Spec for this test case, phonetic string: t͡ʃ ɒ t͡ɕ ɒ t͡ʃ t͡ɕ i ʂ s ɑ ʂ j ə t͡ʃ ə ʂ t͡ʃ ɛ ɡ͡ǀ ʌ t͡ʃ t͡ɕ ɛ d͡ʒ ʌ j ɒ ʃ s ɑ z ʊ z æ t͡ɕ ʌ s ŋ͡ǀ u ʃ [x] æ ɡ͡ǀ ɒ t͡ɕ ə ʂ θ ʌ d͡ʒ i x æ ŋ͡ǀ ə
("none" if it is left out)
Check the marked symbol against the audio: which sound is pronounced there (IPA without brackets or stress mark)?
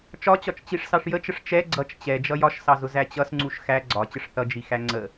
x